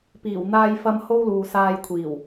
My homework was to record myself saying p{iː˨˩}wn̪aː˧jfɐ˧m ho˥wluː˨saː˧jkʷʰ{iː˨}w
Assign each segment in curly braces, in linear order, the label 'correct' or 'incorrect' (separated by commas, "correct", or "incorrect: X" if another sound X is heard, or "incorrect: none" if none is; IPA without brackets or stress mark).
correct, incorrect: iː˨˩